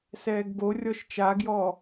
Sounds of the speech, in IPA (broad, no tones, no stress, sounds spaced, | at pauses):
s ɛː ɡ b o rʲ ɔ ʃ t͡ʃ a ɡ j ɔː